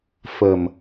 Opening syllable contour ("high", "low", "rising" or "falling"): low